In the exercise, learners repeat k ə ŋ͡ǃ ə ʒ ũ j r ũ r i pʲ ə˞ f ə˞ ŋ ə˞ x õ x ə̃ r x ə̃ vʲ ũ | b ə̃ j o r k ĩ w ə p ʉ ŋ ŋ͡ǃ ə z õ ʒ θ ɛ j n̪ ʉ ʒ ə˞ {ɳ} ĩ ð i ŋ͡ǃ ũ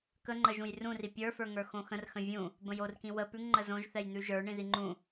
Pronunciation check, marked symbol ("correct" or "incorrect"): correct